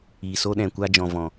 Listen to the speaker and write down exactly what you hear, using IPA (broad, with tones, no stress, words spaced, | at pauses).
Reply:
iː˨so˦ɗɛ̃˨ kʷa˦d͡ʒɔ̃˨vɔ̃˨